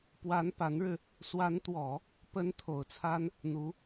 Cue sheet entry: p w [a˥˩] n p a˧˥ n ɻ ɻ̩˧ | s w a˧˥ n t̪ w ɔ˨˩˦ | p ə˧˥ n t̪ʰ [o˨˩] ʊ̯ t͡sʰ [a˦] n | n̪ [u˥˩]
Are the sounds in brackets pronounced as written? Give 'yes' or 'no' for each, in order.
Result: no, yes, no, no

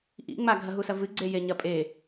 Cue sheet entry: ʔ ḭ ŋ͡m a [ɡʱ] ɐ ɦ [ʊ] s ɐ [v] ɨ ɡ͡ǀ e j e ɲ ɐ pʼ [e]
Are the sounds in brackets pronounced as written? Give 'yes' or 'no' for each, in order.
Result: yes, no, yes, yes

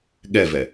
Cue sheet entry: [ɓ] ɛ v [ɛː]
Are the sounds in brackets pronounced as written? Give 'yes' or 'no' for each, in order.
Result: no, no

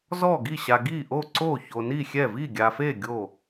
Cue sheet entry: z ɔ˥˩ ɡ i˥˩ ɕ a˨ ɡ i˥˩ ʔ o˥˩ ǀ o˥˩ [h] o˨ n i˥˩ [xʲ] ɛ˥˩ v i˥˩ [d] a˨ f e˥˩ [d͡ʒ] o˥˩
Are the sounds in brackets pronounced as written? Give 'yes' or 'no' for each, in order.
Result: no, yes, no, no

